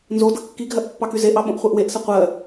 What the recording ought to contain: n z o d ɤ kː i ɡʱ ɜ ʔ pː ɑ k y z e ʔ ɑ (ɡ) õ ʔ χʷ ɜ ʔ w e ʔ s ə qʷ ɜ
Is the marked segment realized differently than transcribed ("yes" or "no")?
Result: yes